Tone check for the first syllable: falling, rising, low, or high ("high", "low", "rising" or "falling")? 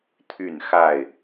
falling